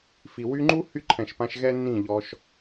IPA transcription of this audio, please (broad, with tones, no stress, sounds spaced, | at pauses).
f i˨ w y˧ ŋ͡ǃ u˦ h y˦ ǃʰ ɛ̃˨ ʃ p ã˧ ʃ ɣ ɛ˦ nː ĩ˦˨ ʎ ɔ˧ ʃ